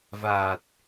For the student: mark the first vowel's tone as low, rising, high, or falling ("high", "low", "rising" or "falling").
low